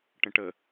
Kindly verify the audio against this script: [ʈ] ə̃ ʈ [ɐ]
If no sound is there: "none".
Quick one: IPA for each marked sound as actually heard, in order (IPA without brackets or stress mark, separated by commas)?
ʈ, ə